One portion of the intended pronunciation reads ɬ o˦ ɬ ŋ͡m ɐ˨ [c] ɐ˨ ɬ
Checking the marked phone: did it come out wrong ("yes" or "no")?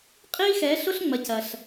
no